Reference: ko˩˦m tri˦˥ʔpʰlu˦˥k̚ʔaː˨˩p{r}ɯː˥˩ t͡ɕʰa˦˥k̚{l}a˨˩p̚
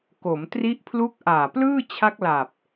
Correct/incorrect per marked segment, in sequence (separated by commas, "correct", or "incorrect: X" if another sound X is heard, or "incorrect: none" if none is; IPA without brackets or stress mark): incorrect: l, correct